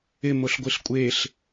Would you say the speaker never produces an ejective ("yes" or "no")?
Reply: no